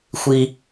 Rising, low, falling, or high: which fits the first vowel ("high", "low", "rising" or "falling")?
low